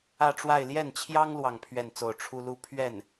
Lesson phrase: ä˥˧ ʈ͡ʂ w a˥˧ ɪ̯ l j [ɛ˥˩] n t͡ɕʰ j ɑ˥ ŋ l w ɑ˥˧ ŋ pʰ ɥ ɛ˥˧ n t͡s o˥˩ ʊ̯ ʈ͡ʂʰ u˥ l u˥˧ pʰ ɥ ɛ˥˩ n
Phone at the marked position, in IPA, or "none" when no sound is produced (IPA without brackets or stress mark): ɛ˥˩